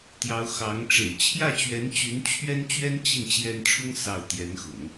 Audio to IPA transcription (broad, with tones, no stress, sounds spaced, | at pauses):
t̪ j ɑ˧˥ ʊ̯ x ɑ˧˥ ŋ ʈ͡ʂ ḛ˨˩ ɪ̯ t͡ɕʰ j ä˥˩ t͡ɕ ɥ ɛ˧˥ n t͡ɕ y˧˥ n t͡ɕʰ ɥ ɛ˥ n t͡ɕ ɥ ɛ˥ n t͡ɕ i˥˩ n t͡ɕ j ɛ˥ n ʈ͡ʂʰ ʊ˥ ŋ s ɑ˥˩ ʊ̯ t̪ j ɛ˧˥ n x ʊ̰˨˩˦ ŋ